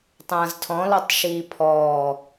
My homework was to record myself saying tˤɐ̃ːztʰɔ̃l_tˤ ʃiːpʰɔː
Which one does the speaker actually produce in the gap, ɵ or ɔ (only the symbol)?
ɔ